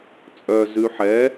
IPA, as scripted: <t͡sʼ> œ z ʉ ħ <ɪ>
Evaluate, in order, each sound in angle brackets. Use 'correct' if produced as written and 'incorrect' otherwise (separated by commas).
correct, incorrect